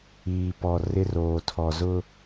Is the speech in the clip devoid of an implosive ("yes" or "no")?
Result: yes